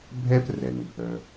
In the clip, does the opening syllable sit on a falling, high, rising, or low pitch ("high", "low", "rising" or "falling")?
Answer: high